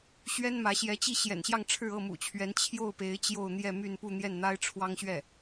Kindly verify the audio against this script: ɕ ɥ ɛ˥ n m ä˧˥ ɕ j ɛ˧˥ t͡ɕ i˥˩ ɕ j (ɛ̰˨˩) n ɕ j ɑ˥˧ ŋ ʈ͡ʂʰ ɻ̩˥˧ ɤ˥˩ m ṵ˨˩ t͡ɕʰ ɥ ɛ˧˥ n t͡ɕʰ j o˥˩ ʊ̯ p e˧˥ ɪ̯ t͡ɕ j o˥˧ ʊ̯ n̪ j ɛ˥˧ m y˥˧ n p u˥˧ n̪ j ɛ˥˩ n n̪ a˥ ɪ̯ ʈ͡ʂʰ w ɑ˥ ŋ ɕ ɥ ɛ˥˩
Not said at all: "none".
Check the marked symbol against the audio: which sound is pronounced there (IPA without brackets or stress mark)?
ɛ̰˨˩